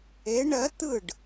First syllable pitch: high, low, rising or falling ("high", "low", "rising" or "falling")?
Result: rising